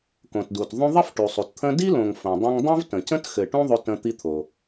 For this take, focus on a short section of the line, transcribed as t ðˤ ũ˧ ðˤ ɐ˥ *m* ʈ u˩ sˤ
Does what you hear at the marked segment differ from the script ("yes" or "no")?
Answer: yes